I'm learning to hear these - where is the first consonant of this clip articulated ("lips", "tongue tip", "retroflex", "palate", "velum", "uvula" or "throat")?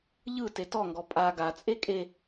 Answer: palate